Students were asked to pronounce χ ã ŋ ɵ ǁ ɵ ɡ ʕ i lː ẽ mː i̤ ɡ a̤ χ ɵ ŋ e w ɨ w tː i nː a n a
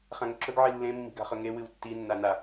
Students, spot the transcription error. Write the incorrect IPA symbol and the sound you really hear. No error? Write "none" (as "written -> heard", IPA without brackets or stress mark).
none